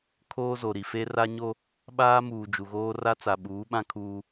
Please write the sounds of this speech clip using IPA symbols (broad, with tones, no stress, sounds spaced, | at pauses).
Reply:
kʰ oː˦ z o˨ ɾ i˨ f e˦ r a˦ ɲ o˦ | ɓ aː˦ m uː˨ d͡ʒ u˨ ɣ oː˦ r a˦ t͡s a˨ ɓ uː˨˦ ɓ ã˦ kʰ uː˦